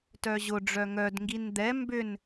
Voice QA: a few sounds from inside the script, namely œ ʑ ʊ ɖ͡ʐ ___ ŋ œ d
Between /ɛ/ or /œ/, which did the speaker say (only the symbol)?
œ